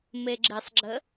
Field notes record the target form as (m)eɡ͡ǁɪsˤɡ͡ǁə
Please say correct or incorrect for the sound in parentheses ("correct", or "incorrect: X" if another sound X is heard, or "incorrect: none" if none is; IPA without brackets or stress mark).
correct